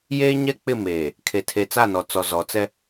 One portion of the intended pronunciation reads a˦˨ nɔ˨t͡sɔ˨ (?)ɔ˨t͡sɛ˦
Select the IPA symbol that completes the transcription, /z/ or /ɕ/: z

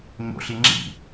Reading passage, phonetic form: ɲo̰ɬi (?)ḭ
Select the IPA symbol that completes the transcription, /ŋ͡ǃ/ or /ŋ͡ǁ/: ŋ͡ǁ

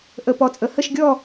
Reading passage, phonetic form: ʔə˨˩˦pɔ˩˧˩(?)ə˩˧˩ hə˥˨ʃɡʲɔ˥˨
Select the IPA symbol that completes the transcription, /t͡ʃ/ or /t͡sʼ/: t͡sʼ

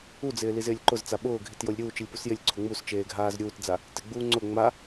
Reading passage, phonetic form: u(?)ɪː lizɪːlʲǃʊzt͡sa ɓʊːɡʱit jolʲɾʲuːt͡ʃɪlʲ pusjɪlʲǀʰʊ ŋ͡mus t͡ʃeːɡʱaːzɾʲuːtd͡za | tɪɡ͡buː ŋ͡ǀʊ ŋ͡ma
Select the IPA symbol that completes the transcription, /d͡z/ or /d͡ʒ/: d͡z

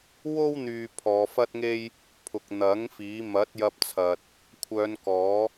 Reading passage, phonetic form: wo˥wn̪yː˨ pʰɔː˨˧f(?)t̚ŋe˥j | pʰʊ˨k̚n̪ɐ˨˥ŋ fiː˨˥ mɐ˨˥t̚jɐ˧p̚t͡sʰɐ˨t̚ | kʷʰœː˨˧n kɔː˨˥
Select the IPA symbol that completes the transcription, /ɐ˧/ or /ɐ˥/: ɐ˥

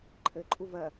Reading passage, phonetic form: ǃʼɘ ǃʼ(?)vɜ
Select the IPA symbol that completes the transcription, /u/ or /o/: u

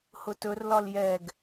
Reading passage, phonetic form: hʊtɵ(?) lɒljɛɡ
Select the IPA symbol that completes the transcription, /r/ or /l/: r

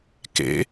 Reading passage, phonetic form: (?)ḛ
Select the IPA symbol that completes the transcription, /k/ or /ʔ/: k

